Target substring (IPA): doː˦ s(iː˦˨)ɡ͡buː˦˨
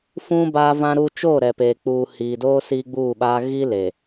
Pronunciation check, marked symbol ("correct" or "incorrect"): incorrect